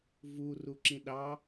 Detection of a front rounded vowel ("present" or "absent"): absent